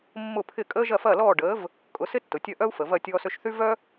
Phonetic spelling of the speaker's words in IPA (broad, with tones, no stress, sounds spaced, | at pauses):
mː ʊ˥˩ pʰ ɪ˥˩ kʼ əː˥ ʒ ɐ˥˩ f ɐː˥˩ l ɔː˥˩ ɖ əː˩˥ v | kʼ ʊ˩˥ s ɪ˥ tː ʊ˩ tʲ ɐ˥˩ ʔ œ˥ u̯ f ə˩ v ɐ˥˩ tʲ ɔː˧ s ø˧ ʃ θ y˥ v œ˥